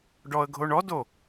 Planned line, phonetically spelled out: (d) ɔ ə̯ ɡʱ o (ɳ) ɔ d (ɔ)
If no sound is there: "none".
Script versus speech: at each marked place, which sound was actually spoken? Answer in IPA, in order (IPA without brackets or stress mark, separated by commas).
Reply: ɖ, ɳ, o